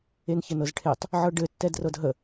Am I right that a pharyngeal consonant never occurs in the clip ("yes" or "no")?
no